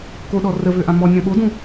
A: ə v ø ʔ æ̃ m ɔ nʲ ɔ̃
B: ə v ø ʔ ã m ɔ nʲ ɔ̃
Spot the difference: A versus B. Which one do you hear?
B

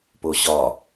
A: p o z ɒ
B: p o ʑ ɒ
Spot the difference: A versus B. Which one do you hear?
B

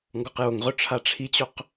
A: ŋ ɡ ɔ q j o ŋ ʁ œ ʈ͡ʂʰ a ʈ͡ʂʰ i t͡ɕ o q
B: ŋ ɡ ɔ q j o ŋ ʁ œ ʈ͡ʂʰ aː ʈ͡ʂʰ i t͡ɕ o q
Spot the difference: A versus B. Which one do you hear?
A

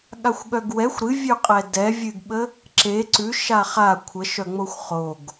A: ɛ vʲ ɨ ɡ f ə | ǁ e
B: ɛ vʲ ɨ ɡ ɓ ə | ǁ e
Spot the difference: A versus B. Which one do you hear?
B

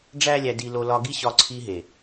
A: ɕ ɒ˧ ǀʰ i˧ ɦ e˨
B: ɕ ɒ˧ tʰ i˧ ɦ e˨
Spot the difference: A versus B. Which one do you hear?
A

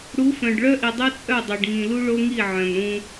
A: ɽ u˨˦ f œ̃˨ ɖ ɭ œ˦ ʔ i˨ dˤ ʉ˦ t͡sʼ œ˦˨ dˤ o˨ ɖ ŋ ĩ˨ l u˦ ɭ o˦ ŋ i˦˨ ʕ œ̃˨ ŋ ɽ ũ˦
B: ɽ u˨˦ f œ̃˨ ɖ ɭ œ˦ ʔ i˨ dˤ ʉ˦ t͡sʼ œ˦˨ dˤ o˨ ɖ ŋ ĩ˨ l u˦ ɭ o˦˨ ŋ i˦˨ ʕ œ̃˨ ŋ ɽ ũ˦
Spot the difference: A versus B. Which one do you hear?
A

